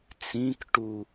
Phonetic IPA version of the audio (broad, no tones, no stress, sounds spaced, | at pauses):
t͡s ĩ k ʈ u